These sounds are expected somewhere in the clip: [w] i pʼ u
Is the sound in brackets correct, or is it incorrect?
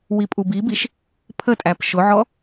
correct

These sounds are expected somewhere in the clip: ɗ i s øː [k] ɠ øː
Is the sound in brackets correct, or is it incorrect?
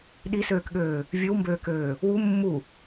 correct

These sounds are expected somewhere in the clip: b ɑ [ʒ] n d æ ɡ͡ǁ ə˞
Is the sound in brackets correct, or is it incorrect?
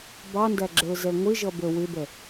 incorrect: none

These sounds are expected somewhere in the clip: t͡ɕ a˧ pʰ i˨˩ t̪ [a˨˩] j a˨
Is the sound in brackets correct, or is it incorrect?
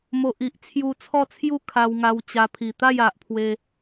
incorrect: a˥˧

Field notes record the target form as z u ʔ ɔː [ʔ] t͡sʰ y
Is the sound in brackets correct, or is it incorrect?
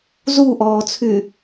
incorrect: none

